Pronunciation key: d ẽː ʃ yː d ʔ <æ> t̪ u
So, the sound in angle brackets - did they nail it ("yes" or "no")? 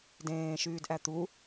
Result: yes